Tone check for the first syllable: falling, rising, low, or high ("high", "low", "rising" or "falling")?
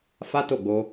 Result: high